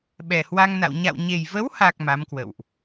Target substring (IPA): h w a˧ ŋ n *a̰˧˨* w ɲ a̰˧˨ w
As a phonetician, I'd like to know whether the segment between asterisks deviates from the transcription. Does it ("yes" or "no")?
no